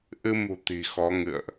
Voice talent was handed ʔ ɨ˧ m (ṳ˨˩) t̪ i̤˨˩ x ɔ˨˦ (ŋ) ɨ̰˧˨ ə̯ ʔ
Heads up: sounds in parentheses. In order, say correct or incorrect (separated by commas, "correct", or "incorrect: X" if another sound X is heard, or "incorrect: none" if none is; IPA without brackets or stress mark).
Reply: correct, correct